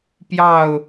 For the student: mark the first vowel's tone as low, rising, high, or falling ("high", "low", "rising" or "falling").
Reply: falling